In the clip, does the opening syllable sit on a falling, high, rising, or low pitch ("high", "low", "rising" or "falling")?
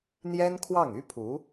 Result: high